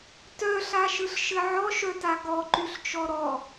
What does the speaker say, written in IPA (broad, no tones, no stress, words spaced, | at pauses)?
tœɬaʃɯɬʃɘ ʕɔʃœta ɡɔǃyɬt͡ʃɔ ɾɔ